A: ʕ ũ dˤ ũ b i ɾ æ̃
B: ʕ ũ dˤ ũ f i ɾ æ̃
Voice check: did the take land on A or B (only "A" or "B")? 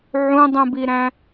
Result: A